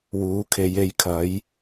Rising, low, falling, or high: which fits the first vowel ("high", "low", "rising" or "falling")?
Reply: rising